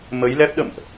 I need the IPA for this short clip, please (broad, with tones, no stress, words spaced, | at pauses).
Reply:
mə˨˦j lɛ˦˥p̚ɗə̰˧˨mʔ